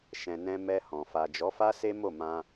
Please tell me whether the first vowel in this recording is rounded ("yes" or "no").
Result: no